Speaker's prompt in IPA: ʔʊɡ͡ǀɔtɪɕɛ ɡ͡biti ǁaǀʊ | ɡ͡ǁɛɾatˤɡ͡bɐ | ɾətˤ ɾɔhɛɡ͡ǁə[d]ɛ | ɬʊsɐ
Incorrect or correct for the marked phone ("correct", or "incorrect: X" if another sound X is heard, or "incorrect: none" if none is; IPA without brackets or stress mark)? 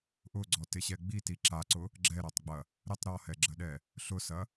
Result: incorrect: ɗ